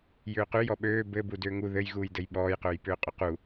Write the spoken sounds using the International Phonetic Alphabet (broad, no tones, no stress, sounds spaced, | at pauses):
j ʏː q ʉ j ɔ ɓ øː b ɘ b u d ʏː ŋ u ð ɘ j ɣ uː j d ɘ j ɓ ɔː j q øː j p ʏː qʼ ʏ q u